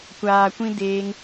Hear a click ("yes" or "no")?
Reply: no